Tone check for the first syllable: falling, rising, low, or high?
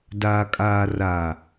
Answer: low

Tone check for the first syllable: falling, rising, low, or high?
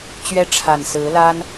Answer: high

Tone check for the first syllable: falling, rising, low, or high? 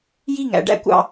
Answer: falling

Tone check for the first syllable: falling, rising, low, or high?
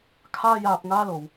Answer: high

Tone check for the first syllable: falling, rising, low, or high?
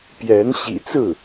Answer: rising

